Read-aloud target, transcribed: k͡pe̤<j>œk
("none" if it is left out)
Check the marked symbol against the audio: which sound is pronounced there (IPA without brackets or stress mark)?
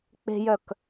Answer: j